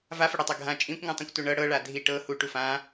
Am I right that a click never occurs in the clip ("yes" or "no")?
yes